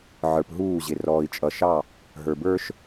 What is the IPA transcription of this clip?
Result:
ʕ ə˞˨ p ɦ uː˦˨ ʑ ɪ˨ r ɔː˨ i̯ t͡ʃʼ ʌ˨ ʃ ɑ˦˨ | ɦ ə˞˨ b ə˞˦ ʃ

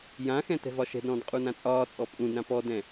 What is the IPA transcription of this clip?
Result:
j ã x ɛ̃ t ɛ̤ v ɒ ʃ ɛ̤ d ɾ ɔ̃ː d qʼ u n ã t͡sʼ ɒː t͡sʼ ɔ pʼ ũ d ɾ ã p ɔ d ɛ̃

